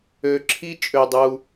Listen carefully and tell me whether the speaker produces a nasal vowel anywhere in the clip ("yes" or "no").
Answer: no